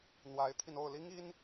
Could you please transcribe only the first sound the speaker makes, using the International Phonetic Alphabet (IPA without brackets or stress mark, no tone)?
n̪